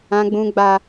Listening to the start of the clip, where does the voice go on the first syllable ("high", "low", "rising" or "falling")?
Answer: high